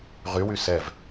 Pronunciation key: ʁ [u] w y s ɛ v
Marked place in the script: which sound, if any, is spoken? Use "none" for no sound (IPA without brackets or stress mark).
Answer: y